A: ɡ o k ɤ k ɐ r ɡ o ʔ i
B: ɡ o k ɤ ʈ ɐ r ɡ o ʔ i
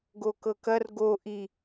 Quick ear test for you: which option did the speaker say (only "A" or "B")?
A